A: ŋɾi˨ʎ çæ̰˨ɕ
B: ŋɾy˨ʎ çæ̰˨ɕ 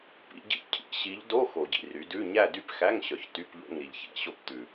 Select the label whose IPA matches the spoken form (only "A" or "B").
A